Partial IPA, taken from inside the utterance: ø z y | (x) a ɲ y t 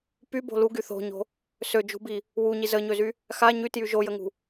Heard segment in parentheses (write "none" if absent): x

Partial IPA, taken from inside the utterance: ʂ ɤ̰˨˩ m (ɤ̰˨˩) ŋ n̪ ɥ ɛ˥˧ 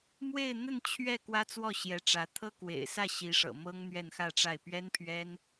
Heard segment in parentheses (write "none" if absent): ɤ˥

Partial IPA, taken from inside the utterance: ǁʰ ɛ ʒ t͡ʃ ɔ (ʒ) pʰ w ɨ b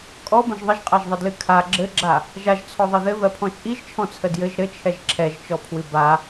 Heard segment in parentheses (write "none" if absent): none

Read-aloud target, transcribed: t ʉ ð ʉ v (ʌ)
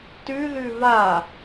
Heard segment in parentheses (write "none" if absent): a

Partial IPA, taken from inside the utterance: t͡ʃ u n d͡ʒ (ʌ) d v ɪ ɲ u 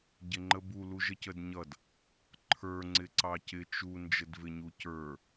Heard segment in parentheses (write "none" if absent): ə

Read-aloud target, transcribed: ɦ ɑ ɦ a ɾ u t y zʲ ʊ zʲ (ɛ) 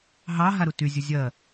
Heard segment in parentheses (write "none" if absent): ɜ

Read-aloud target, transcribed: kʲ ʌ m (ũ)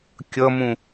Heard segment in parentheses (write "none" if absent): ũ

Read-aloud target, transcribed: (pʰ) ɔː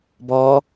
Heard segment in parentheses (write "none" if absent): b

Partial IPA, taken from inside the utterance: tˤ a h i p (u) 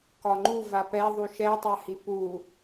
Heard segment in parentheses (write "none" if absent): u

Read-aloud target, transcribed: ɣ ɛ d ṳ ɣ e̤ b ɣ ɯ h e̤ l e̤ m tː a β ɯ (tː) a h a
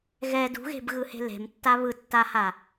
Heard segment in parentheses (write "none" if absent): tː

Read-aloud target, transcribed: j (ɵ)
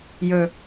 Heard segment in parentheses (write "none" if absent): ɵ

